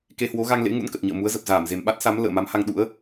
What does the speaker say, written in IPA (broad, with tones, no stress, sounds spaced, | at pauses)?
k e˧ h w o˨˦ ɣ a˧ ŋ l ḛ˧˥ ŋ ṵ˧˥ n k ə˨˩ t̚ ɲ ə̰ː˧˨ m u˨˦ ə̯ z ə˨˩ p̚ z aː˧˩ m z e˨˩ m ɓ a˦˥ t̚ s a˨˦ m l ə̰ː˧˨ m a˨˦ m h a˧ ŋ ɗ ṵ˧˥ ə̯